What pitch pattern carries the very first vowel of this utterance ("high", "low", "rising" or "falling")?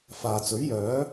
low